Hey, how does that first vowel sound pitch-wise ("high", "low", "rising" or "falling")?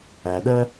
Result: low